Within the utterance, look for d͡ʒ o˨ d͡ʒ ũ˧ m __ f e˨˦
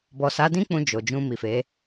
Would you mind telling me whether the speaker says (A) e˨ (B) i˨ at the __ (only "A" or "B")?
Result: B